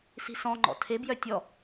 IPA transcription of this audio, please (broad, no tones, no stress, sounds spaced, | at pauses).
s i̤ s ɔ̃ ŋ͡ǃ ɔ̰ tʰ e b j œ tʲ ɔ